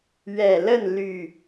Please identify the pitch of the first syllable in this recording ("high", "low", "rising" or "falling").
low